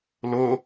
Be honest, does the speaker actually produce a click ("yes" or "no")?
no